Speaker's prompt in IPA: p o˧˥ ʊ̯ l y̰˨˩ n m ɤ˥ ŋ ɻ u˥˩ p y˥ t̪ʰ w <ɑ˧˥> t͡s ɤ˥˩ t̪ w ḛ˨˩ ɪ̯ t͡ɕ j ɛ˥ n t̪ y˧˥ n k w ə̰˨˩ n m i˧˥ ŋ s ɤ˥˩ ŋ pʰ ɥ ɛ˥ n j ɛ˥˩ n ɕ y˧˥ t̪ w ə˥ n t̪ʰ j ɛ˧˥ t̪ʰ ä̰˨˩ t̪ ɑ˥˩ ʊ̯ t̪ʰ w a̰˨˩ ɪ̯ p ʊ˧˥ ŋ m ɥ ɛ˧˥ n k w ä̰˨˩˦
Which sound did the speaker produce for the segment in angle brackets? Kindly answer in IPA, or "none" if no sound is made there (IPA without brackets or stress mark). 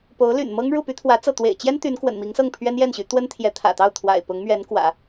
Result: ä˧˥